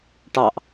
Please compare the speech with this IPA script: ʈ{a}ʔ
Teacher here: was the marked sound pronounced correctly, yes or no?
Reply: no